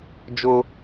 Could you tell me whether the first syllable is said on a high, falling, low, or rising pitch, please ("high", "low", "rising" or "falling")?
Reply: high